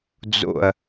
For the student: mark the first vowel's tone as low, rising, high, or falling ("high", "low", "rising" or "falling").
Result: low